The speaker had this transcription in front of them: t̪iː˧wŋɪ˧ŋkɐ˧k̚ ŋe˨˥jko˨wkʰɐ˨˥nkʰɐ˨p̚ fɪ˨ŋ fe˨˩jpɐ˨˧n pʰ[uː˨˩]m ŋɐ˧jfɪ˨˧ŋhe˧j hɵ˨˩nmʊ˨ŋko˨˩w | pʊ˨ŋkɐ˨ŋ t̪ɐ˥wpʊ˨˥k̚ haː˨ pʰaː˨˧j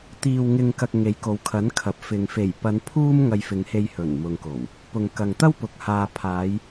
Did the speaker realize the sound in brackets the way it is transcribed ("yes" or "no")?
no